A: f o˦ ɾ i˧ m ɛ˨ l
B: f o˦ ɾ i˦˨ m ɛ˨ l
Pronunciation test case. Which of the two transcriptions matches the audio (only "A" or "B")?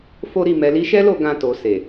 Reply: B